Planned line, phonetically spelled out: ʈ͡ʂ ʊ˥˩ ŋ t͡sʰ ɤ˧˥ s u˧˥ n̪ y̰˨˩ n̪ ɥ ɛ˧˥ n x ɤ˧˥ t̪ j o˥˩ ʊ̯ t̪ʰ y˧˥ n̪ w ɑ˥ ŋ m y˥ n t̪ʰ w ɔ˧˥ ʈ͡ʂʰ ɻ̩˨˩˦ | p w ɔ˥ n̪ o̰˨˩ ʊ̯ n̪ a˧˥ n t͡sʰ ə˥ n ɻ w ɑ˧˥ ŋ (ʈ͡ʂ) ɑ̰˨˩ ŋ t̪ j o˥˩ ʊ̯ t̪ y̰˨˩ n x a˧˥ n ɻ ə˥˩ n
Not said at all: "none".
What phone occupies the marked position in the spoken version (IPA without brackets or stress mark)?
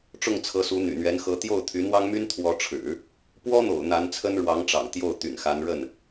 ʈ͡ʂ